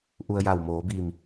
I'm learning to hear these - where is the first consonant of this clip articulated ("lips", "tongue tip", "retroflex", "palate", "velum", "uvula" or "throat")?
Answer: throat